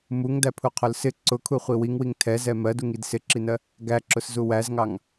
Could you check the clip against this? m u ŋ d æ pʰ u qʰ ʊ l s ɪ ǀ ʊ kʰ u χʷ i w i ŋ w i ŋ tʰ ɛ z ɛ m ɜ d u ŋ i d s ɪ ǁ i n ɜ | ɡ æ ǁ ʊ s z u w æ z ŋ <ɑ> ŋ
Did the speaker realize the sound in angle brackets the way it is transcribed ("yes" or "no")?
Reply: yes